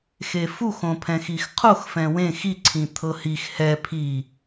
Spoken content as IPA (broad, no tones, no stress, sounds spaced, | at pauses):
x e f u x õ pʰ ɛ̃ x i x qʰ o x f ɛ̃ w ẽ x i ǀʰ ĩ t̪ʰ ɤ h i x h ɛ pʰ i